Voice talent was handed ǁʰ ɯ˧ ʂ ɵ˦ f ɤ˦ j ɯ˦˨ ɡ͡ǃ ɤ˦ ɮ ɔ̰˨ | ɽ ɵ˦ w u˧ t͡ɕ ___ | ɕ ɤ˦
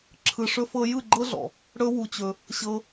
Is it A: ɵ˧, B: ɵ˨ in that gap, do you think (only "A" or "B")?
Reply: A